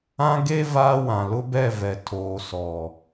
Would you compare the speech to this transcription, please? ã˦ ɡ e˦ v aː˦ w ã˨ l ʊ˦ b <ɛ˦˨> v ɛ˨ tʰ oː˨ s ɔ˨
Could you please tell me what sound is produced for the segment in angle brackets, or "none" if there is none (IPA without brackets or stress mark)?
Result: ɛ˦˨